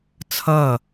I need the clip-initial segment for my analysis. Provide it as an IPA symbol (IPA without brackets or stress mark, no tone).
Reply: t͡sʰ